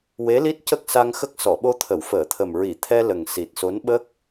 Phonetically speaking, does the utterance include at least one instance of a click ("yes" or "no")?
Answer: no